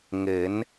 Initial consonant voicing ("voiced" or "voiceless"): voiced